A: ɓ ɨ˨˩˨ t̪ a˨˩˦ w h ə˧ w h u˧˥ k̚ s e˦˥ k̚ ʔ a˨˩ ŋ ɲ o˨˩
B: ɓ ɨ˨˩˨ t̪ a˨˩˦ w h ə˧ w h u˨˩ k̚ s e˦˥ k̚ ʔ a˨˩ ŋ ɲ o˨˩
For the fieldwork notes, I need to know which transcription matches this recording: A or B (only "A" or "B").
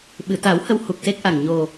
B